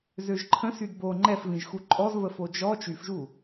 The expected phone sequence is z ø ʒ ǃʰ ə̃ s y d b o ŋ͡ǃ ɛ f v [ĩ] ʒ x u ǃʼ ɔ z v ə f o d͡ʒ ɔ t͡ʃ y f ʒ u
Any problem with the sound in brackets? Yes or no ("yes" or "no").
no